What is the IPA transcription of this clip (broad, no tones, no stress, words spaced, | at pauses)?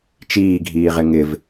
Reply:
t͡ʃiːɡʱiːʁɪ ŋɪv